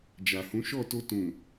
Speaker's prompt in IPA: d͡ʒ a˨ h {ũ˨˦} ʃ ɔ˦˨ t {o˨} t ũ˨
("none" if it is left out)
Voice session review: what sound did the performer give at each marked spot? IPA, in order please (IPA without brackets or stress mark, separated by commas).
ũ˨˦, o˧